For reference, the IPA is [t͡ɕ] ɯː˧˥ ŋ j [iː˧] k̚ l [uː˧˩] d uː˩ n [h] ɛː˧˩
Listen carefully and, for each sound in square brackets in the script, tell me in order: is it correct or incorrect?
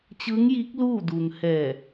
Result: correct, incorrect: iː˧˥, incorrect: uː˥˨, correct

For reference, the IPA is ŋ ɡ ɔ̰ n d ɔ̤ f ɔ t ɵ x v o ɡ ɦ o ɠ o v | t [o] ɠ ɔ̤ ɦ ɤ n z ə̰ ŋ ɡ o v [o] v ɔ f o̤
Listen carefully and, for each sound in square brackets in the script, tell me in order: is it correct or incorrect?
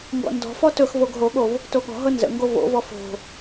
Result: correct, incorrect: o̰

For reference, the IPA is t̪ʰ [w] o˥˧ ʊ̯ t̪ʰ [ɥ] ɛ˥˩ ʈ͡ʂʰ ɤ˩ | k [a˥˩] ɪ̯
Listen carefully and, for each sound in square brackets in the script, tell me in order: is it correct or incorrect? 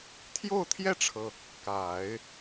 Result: incorrect: j, incorrect: j, incorrect: a˨˩˦

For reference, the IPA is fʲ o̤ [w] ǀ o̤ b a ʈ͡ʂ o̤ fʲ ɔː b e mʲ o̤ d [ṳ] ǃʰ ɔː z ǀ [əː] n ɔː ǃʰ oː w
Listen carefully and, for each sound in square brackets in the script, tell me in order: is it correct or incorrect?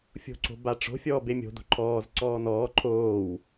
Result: incorrect: none, incorrect: o̤, incorrect: ɔː

